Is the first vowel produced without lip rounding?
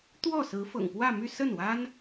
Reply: no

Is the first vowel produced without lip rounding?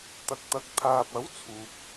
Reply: yes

